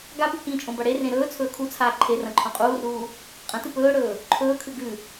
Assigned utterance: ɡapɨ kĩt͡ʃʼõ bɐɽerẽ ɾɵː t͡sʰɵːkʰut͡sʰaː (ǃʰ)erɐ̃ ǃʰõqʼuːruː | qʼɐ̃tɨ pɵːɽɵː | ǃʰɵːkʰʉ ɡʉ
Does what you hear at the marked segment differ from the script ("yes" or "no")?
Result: no